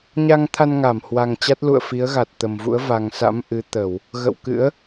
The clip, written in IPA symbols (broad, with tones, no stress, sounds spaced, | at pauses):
ɲ a˧ ŋ t̪ʰ a˧ n ŋ a˧˩ m h w a˨˩ ŋ t͡ɕ a˦˥ t̚ l ṵ˧˨ ə̯ f i˨˦ ə̯ ɣ a˨˩ t̚ t̪ ə˨˩ m v ṵ˧˥ ə̯ v a˨˩ ŋ s a̰˧˥ m ʔ ɨ˨˦ t̪ ə˧˩˨ w | ɣ ə̰˧˨ w k ɨ̰˧˥ ə̯